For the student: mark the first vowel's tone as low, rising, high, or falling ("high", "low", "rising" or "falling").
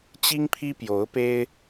high